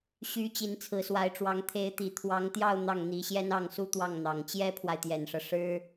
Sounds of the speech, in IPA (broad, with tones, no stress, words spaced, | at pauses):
ɕy˧˥ t͡ɕi˧˥nt͡sʰɹ̩˧˥swa˧˥ɪ̯ʈ͡ʂwɑ˧˥ŋ t̪ʰe˧˥ɪ̯t̪i˨˩ t̪ʰwɑ˧˥ŋt̪jɑ˥˧ʊ̯ n̪ɑ˥˩ŋn̪i˧˥ ɕjɛ˥nɑ˥˩ŋsu˥t̪wɑ˥˩ŋ n̪ɑ˨˩ŋ t͡ɕjɛ˥pʰwa˨ɪ̯t̪jɛ˨˩nʂɤ˦ ʂɻ̩˥